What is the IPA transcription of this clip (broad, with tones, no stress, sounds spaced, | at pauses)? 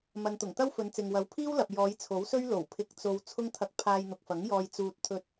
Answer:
m ɐ˨ n t̪ ʊ˨˩ ŋ t̪ ɐ˥ w f ɵ˨˧ n t͡s ɪ˨ ŋ w ɐ˨ w pʰ iː˥ w l ɐ˨ p̚ j ɔː˨˧ j t͡sʰ o˨˥ w s ɵ˥ ɥ l o˨˩ w pʰ ɪ˧ k̚ t͡s o˧ w t͡sʰ ʊ˥ ŋ t̪ʰ ɐ˧ k̚ pʰ aː˧ j n̪ ʊ˨ k̚ f ɐ˨˥ ŋ j ɔː˧ j t͡s uː˧ t̚ t̪ʰ ɵ˧ t̚